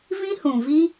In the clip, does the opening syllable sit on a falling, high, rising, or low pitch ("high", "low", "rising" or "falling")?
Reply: high